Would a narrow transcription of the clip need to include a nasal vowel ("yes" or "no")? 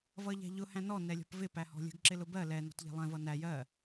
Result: yes